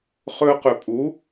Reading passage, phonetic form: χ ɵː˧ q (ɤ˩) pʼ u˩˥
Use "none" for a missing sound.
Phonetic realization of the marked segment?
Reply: ɵ˩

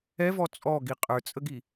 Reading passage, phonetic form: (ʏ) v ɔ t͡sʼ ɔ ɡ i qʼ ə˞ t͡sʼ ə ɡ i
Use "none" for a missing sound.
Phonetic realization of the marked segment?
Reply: ɛ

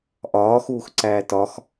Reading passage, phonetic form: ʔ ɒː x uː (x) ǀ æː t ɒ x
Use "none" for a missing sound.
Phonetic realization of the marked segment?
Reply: x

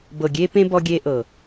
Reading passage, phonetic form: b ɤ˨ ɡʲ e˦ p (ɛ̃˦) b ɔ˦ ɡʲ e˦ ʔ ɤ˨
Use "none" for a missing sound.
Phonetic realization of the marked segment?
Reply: ẽ˦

